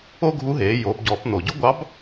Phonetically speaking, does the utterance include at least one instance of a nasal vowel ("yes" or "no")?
no